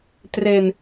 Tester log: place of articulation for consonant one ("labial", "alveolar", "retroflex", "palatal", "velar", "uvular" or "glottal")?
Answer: alveolar